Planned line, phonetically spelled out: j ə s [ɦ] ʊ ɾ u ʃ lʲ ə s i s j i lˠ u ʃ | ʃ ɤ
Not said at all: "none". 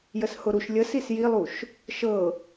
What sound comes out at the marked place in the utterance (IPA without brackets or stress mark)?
h